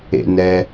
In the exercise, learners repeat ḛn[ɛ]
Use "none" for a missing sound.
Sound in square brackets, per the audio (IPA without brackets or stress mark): ɛ